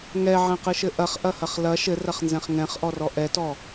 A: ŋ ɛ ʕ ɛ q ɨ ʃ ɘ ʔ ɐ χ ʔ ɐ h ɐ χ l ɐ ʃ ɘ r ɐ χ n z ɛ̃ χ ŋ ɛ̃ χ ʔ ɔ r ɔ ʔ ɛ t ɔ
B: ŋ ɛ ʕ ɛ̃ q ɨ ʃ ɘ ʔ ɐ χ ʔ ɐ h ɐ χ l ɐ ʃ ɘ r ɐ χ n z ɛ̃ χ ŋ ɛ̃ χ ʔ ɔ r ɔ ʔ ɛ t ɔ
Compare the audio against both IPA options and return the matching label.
B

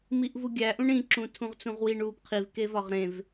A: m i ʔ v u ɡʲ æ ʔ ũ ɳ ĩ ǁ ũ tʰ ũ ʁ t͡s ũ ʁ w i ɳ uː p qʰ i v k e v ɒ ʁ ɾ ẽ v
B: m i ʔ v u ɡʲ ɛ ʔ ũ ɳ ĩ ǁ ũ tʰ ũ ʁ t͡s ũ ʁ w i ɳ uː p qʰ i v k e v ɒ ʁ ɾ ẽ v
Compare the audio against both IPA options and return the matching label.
A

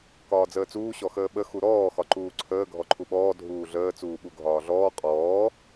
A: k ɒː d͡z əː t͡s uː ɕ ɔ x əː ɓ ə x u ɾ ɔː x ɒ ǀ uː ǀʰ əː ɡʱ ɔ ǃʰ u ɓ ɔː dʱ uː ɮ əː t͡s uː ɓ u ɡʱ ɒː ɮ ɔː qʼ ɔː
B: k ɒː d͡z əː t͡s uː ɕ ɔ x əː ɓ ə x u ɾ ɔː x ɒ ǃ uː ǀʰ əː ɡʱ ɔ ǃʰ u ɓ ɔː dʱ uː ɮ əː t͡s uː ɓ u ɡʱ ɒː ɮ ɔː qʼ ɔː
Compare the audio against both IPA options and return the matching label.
B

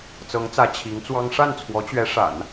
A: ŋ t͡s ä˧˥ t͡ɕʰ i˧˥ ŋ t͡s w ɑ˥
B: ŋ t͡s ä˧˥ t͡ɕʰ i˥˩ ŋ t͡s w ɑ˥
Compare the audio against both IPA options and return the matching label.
A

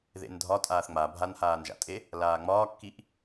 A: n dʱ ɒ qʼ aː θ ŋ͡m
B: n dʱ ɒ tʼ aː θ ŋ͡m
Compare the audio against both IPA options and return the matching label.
B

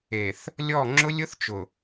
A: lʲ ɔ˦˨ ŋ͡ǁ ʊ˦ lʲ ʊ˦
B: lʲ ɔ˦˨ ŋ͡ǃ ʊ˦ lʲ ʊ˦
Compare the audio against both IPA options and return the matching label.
A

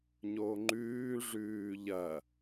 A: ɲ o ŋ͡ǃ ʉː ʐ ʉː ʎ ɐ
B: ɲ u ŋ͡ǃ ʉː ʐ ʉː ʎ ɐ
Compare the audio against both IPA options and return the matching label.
A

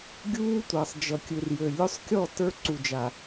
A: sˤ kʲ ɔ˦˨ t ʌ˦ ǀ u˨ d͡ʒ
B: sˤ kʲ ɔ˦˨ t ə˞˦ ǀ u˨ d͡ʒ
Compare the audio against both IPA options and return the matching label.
B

